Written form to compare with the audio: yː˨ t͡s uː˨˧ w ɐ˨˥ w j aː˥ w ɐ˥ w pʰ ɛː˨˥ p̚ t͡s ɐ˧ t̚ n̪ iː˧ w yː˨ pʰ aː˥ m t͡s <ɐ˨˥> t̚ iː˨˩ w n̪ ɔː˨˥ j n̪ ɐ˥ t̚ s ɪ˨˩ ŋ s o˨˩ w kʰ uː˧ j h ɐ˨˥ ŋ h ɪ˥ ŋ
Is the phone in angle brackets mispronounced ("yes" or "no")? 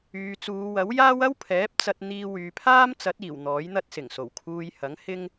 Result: no